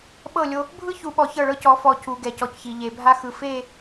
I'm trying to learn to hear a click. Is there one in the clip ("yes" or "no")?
no